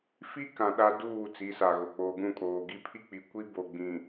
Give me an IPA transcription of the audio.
f i˦ k ã˨ ɗ a˦ d uː˦˨ t͡s i˨˦ s a˨ ɣ o˨ k͡p oː˨ ɡ ũ˦˨ kʼ oː˨ ɡ i˦ pʰ i˦ k͡p i˨ kʷ i˦ b o˨ ɡ͡b ĩ˨

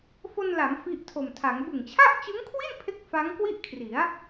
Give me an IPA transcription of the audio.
f o˧ n l a˩˦ m f i˦˥ ʔ tʰ o˨˩ m tʰ a˩˦ ŋ b ɯ˨˩ ŋ t͡ɕʰ a˥˩ ʔ t͡ɕ ɯ˦˥ ŋ kʰ w i˥˩ n pʰ e˥˩ k̚ f a˦˥ ŋ k w i˥˩ ʔ kʰ r i˩˦ a̯

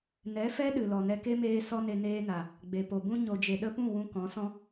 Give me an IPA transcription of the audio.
n ɛ˨˦ f ɛ˦ ɗ ɨ˨ l ɔ˨ n ɛ˧ k e˦ m eː˧ s ɔ˦ n e˧ n eː˧ n a˨ | ɡ͡b e˨ p o˨ b ũ˧ ɲ o˨ d͡ʒ e˨ ɗ ə˧ p ũ˦˨ w ũ˧ k ɔ̃˨˦ s ɔ̃˦

